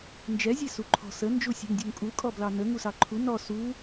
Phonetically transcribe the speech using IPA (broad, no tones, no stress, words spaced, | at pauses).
nd͡ʒɛ zʲesuǃʰɔ̤ sə nd͡ʒusʲɛ̤ŋdʲuŋkʼu kʼɔblɑnə ŋusɑǃʰu nɔ su